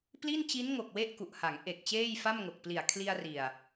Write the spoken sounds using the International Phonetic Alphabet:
p l i˥˩ n t͡ɕ i˦˥ n ŋ o˨˩ k̚ w e˥˩ ʔ k u˨˩ ʔ h a˩˦ ŋ ʔ e˨˩ k̚ t͡ɕ eː˥˩ j f a˥˩ m ŋ o˨˩ k̚ p l i˨˩ a̯ kʰ l i˧ a̯ r i˨˩ a̯

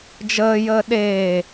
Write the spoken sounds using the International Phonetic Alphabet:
d͡ʒ əː j əː ɗ eː

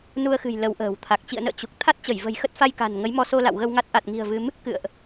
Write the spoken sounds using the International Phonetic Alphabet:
n u˧ ə̯ x ɨ̤˨˩ j l ə˨˦ w ʔ ə̤ː˨˩ w t̪ʰ a˨˩ k̚ t͡ɕ ḭ˧˨ ə̯ n ə̰ː˧˨ t͡ɕ u˨˩ k̚ t̪ʰ a˦˥ t̚ t͡ɕ ə˧˩ j v ə̤˨˩ j x ə˦˥ t̚ f a˧ j k a̤˨˩ n ŋ ə˨˦ j m ɔ˧ s o˧ l a̰˧˨ w ɣ ə˧ w ŋ a˦˥ t̚ ʔ a˨˩ t̚ ŋ i̤˨˩ ə̯ v ɨ˨˦ m | k ɨ̰˧˨ ə̯ ʔ

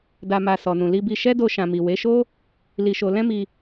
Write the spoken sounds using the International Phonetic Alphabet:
d a˨ m a˨ s ɔ˨ n ũ˨ l i˧ b i˧ ʃ ɛ˦ d o˧ ʃ ã˨ m i˨ w e˨˦ ʃ o˦ | l i˧ ʃ o˧ l ɛ̃˦ m i˧

